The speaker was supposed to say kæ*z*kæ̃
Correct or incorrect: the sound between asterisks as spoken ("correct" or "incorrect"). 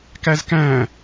correct